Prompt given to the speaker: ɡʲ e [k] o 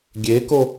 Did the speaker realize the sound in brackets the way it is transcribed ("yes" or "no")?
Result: yes